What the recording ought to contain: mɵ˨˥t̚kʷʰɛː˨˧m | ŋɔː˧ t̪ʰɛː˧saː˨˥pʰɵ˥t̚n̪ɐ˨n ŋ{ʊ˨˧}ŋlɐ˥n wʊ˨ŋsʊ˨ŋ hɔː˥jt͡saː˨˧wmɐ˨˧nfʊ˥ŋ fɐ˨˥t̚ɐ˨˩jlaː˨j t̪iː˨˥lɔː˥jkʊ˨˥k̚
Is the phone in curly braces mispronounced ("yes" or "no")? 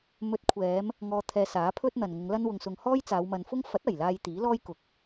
no